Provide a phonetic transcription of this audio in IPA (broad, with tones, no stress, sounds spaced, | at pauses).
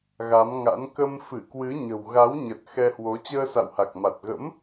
ɣ a˨˦ m ŋ a̰˧˥ n k ə˧ m f ɨ˧˩ k w ɨ˨˦ ɲ ə̤˨˩ w ɣ a˨˦ w ɲ ə˨˩ t̚ x ɛ˧ h w o˨˦ t͡ɕ əː˧ s a̰˧˨ w h a˨˩ k̚ m a˨˩ t̚ ɣ ə̰˧˥ m